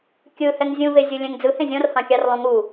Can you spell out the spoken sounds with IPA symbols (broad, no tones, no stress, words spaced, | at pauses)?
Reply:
kʲɯhɛŋ zʲũvezʲu lʲɛ̃ŋd͡zɯ hẽzʲɔ̃rhɑ̃kʲɑr lˠũŋu